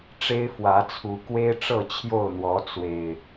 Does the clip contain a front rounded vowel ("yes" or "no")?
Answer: no